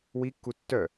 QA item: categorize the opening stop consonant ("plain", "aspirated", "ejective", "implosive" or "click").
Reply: plain